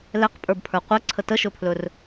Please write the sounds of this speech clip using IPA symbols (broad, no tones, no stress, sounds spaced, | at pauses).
l ɛ q pʼ ə˞ b pʰ ə˞ qʷ ɛ ǀʰ ə t ə ʃ ɵ pʰ l ɵ r